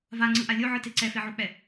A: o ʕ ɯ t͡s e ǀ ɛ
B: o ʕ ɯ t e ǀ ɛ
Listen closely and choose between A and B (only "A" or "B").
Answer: B